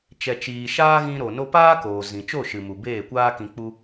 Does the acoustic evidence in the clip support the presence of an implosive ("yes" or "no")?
no